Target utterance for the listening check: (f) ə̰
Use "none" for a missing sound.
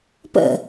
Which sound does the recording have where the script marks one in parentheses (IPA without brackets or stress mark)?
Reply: p